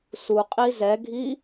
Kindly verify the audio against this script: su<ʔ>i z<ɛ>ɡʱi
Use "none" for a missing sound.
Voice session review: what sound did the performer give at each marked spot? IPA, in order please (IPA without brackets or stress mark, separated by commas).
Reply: qʼ, ɛ